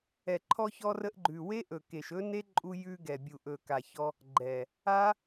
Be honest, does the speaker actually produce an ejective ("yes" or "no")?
yes